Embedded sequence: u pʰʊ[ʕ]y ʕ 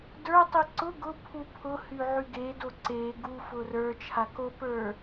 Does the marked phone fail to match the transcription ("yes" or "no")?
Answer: yes